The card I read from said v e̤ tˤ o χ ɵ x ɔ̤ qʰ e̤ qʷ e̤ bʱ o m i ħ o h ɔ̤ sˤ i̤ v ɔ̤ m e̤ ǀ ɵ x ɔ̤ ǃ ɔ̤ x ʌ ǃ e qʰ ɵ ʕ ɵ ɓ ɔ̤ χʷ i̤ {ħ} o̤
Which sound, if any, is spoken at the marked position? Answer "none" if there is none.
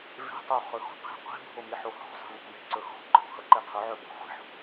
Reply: ħ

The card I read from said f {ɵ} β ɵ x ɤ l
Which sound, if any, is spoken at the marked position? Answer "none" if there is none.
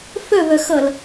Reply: ɵ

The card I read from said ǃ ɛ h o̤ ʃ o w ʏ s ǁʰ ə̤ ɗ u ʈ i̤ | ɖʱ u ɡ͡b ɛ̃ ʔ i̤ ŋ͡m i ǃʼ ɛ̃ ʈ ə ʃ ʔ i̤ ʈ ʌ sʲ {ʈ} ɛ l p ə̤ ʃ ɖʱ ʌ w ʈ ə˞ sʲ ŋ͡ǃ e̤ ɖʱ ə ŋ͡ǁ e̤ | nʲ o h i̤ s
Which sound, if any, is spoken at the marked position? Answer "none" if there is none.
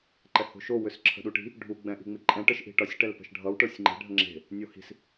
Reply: ʈ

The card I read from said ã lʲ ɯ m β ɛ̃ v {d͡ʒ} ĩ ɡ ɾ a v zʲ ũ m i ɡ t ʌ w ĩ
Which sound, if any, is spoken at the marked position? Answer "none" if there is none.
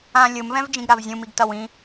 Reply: d͡ʒ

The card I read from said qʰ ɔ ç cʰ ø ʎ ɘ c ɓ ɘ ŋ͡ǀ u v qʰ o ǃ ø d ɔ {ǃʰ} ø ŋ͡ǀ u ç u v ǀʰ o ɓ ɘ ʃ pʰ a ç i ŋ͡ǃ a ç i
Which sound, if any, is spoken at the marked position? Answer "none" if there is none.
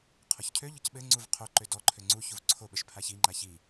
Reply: ǃʰ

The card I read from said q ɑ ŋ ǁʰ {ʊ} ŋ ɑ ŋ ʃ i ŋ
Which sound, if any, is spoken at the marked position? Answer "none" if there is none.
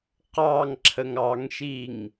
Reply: ə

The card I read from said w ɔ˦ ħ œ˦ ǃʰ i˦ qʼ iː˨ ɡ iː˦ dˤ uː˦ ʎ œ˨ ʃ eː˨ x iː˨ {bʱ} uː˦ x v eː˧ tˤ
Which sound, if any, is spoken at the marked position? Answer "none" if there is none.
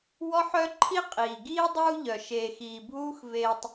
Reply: bʱ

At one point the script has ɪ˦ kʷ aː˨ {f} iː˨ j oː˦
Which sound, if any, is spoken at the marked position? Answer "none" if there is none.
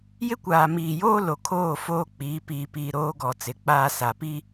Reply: m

